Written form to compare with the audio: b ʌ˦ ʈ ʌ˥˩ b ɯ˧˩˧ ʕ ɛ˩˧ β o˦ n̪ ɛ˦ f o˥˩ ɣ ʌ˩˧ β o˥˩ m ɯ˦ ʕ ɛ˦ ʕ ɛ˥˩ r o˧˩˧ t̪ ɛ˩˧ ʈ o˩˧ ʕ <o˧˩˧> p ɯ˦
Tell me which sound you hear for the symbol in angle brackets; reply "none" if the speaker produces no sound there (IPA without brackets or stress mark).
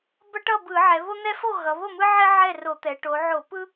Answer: o˧˩˧